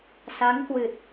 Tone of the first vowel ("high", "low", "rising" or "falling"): rising